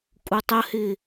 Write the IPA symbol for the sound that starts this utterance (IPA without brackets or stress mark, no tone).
kʼ